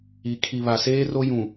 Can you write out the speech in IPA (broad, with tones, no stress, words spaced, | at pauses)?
i˨ kʰi˨βa˨seː˦ro˦ jũ˨